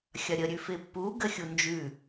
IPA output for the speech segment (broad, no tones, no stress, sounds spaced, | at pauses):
xʲ ɐ ɾʲ ə ɾʲ ʉ f ɪ pː u ɡ ə xʲ u n d͡ʒ ʉ